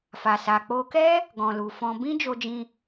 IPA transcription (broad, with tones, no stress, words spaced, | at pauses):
fa˨sa˨ k͡po˧kɛ˦ | ɡɔ̃˨lu˨fɔ̃˧ bĩ˦d͡ʒo˧d͡ʒĩ˧